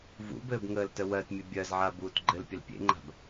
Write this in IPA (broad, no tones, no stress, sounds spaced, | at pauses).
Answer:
v ṵ b ɘː b ŋ əː l t ə w ɜ t mʲ ɘ bʲ ɜ z ʕ a b uː t ɡ͡ǃ ɘ l pʲ ə l pʲ ḛ ŋ͡ǃ a̤ b